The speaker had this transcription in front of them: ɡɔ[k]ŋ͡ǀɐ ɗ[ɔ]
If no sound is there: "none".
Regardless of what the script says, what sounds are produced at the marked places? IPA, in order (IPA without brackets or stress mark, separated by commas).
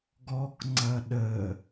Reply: k, ə